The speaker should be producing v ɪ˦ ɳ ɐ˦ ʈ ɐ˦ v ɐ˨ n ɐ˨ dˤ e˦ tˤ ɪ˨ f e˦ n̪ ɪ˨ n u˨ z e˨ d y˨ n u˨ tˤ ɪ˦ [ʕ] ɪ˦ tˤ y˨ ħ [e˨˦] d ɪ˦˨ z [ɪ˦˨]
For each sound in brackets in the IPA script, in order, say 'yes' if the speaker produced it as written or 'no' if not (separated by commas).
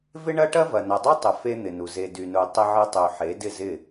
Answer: yes, yes, yes